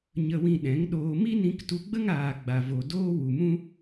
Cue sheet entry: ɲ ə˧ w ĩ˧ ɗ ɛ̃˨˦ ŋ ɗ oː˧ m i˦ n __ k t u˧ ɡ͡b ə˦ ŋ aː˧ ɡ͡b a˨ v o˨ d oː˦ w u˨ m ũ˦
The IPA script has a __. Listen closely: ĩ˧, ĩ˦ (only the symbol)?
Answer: ĩ˧